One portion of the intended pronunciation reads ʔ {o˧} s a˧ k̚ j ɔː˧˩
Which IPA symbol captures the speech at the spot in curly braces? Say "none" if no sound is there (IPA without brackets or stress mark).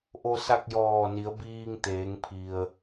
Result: o˧